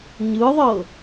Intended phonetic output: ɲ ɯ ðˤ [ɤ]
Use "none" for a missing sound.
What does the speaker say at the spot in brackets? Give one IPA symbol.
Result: ɤ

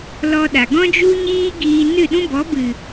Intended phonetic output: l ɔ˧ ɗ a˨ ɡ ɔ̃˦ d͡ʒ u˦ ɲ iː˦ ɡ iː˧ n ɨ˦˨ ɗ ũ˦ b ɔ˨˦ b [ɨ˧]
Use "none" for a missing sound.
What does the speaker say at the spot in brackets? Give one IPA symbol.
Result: ɨ˨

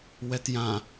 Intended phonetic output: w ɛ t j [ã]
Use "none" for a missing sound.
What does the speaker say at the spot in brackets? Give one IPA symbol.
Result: ã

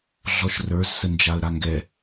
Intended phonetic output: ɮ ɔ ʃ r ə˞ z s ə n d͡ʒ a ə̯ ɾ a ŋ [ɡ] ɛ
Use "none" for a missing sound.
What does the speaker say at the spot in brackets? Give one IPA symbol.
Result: ɡ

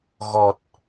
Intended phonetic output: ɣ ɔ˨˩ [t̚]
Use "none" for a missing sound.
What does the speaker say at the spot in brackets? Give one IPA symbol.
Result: t̚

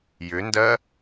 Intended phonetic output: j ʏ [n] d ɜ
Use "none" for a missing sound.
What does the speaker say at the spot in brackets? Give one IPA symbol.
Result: n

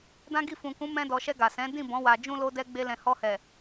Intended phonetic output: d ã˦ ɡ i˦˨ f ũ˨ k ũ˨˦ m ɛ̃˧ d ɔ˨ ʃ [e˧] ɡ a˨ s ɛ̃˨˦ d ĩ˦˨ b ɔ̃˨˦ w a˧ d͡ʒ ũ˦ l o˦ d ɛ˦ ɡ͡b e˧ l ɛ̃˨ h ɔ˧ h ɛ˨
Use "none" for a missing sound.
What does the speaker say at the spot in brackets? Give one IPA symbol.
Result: ɛ˧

